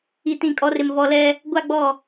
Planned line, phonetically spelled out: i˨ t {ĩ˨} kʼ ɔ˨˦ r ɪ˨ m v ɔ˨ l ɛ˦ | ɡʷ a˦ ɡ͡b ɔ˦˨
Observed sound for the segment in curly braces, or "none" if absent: ĩ˨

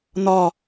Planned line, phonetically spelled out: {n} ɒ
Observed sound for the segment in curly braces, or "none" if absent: n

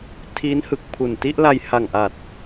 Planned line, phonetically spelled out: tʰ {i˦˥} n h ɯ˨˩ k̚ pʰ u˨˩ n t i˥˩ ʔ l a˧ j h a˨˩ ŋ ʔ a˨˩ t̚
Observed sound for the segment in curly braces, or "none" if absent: i˦˥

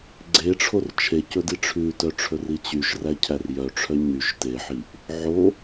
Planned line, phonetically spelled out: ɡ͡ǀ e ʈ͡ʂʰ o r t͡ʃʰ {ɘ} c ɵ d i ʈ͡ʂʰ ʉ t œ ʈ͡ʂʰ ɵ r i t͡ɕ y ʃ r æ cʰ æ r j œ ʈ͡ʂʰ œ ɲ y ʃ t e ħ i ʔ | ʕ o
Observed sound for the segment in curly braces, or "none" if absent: e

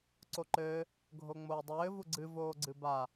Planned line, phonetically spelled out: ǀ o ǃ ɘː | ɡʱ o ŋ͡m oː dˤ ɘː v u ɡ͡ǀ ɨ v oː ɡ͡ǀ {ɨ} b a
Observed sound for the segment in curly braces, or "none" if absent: ɨ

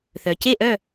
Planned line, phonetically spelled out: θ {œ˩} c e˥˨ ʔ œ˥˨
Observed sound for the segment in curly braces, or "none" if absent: œ˩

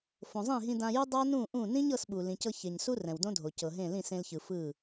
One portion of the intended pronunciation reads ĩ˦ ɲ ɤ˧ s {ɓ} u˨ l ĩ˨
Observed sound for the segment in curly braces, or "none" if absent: ɓ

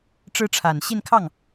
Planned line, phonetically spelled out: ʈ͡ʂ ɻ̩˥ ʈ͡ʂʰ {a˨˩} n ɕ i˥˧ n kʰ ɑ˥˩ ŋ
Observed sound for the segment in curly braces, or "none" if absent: a˨˩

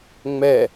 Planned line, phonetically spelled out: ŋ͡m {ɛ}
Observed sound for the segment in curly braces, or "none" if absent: ɛ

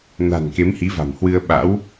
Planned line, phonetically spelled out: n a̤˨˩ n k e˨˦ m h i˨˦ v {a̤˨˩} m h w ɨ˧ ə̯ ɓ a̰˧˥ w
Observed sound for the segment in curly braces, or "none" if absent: a̤˨˩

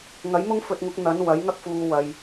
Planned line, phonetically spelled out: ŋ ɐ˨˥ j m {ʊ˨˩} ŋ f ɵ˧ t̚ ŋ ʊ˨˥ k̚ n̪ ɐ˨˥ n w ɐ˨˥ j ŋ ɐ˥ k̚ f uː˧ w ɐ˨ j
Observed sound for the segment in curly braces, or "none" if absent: ʊ˥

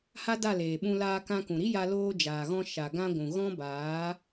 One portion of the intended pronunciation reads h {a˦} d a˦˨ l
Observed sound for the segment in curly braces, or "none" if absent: a˦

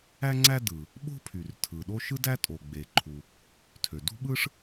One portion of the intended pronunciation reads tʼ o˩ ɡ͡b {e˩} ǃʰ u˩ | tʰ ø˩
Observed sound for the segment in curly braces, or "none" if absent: e˩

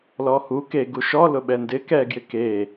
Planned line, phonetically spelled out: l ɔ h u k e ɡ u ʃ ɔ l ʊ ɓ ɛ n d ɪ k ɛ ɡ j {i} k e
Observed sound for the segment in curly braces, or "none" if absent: ɪ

